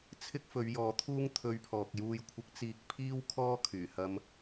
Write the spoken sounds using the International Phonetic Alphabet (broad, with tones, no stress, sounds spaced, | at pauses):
t͡sʰ ɪ˥ k̚ f ɵ˨˧ ɥ j ɔː˨˧ t̪ʰ uː˥ ŋ t̪ʰ ɵ˧ ɥ pʰ ɔː˨ k̚ j uː˨ j kʷʰ ɪ˨˥ k̚ t͡s iː˨ k̚ pʰ iː˥ w kʰ ɔː˥ kʰ yː˨˩ h ɐ˧ m